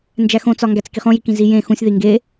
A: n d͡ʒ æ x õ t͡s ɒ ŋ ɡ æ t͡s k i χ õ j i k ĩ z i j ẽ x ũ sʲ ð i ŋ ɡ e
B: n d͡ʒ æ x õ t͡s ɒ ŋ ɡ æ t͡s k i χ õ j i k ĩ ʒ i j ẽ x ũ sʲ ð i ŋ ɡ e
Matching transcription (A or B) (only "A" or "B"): A